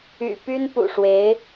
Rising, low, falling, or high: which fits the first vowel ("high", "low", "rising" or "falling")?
low